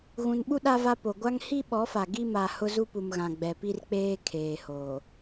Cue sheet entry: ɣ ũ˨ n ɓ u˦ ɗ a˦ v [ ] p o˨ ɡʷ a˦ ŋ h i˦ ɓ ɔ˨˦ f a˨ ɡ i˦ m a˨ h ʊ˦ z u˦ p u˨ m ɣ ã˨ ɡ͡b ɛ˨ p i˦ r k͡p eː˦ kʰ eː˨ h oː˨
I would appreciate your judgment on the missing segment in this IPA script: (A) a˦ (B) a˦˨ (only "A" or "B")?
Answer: A